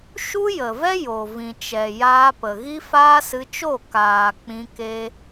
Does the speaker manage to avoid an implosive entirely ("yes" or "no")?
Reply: yes